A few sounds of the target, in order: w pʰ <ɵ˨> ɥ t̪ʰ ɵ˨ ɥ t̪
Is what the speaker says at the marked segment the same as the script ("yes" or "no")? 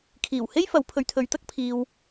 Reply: yes